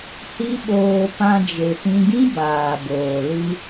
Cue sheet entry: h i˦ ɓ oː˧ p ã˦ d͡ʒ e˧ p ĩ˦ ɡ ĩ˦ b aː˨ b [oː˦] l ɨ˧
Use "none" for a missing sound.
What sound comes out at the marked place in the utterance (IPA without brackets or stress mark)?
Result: oː˨